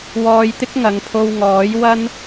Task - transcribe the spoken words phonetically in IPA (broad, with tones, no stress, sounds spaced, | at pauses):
w ɔː˧ j t̪ ɪ˥ k̚ ŋ ɐ˨˧ ŋ pʰ o˧ w ŋ ɔː˨˥ j w ɐ˥ n